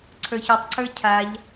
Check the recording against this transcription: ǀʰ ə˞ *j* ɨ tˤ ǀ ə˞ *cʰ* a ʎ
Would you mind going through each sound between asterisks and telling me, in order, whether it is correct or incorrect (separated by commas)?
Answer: incorrect, correct